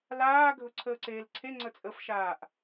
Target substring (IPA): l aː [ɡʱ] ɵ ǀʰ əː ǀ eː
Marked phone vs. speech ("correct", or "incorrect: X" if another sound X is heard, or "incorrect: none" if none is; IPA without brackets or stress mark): correct